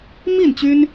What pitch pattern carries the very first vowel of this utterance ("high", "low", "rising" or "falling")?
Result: falling